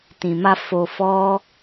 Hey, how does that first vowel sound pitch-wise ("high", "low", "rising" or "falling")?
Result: low